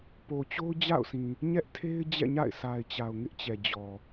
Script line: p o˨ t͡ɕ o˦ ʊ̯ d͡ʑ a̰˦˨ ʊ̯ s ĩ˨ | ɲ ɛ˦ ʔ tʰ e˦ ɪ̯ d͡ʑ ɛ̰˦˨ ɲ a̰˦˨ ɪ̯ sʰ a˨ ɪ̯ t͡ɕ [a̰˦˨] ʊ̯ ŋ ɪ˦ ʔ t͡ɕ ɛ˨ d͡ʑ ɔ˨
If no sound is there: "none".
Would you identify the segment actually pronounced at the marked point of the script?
a˨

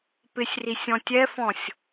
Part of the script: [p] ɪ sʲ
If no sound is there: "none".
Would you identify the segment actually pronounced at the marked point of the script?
p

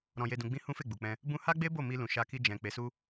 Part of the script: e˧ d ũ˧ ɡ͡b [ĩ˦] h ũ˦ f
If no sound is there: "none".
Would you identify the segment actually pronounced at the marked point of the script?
ĩ˦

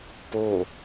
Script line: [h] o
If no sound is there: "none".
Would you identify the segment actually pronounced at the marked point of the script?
p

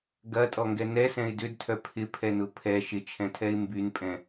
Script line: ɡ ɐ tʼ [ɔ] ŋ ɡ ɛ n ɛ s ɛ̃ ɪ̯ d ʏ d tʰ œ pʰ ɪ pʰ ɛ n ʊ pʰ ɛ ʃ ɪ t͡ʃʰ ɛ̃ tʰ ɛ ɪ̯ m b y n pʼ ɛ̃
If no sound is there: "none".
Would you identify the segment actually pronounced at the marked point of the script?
ɔ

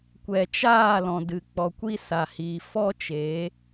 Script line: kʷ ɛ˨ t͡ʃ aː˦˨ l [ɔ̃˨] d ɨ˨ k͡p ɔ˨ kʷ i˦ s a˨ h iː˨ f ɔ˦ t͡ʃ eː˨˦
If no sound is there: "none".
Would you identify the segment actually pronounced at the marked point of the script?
ɔ̃˨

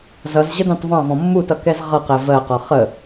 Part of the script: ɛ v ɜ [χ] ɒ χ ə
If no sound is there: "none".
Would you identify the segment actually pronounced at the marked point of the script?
q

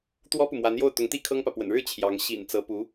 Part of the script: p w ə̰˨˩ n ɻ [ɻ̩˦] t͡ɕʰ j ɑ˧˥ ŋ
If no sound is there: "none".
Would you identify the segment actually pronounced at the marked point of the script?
ɻ̩˥˩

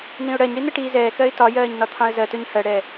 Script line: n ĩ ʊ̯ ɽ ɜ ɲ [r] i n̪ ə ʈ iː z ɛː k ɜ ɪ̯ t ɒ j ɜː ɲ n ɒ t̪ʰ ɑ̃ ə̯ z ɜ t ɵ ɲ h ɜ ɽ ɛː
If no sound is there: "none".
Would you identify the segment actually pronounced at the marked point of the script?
ɽ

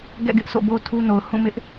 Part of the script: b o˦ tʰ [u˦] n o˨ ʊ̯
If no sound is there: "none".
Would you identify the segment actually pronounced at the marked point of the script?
u˦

